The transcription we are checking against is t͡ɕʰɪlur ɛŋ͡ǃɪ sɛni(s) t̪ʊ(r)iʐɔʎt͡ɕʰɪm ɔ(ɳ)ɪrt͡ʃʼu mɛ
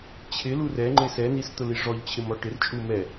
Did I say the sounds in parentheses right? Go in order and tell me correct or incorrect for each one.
correct, incorrect: l, incorrect: ʈ

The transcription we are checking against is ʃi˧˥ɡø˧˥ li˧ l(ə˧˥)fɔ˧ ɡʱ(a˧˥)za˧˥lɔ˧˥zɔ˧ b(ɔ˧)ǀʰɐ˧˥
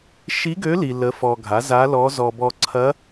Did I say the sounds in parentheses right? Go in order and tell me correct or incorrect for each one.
correct, incorrect: a˩˥, correct

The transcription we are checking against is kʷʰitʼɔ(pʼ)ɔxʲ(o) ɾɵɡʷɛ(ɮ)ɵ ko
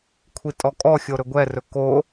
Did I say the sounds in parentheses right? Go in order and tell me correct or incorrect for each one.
incorrect: kʼ, correct, incorrect: r

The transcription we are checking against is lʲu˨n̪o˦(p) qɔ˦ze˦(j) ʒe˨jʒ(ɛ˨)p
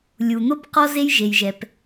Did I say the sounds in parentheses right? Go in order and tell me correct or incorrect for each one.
correct, correct, correct

